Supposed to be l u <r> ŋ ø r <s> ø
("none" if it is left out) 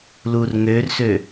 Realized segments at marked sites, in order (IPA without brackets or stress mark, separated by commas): r, s